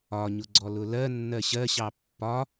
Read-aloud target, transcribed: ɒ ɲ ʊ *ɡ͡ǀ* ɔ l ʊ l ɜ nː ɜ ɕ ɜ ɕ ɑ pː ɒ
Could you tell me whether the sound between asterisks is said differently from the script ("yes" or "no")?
no